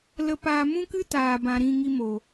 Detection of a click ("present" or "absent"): absent